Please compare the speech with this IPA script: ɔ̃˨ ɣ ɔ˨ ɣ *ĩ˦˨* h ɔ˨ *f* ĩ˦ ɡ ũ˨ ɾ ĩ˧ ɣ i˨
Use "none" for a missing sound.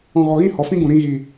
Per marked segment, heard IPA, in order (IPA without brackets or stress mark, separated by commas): ĩ˦˨, f